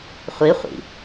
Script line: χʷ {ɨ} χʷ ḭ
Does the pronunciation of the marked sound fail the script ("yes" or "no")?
yes